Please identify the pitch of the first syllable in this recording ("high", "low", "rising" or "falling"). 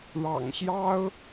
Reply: low